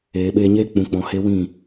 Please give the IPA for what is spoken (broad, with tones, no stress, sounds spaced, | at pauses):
eː˨ ɓ eː˧ ɲ eː˦ k͡p ũ˨˦ k͡p ɔ̃˨˦ h e˦ w ĩ˦˨